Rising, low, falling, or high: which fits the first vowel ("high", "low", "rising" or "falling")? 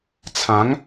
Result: rising